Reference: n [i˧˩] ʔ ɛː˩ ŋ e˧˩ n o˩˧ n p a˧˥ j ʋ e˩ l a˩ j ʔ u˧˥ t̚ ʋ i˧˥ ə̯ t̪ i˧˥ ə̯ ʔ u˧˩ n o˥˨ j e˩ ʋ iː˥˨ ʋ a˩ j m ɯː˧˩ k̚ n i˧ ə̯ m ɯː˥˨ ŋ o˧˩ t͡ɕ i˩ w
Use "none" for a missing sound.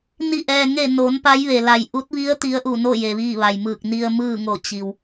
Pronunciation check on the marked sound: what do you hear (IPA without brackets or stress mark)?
i˧˩